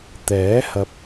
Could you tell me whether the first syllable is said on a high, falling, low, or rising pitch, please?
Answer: rising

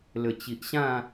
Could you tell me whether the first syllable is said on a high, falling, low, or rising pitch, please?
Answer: low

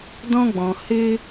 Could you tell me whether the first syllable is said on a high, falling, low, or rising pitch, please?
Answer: high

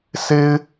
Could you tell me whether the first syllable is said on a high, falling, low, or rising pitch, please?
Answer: high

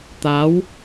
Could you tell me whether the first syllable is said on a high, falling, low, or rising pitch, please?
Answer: rising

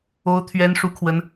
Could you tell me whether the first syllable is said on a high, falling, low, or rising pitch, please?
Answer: high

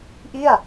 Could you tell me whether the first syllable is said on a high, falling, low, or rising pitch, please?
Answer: falling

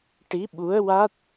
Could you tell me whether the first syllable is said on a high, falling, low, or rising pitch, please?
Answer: rising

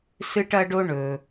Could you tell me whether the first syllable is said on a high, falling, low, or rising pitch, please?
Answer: high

